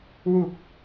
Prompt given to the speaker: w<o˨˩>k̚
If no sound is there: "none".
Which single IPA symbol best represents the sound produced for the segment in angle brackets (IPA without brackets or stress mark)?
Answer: u˨˩